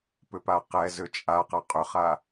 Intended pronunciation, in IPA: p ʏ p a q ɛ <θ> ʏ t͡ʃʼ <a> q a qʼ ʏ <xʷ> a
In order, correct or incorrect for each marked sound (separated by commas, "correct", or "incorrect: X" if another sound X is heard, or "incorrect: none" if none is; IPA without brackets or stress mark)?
incorrect: z, correct, incorrect: χ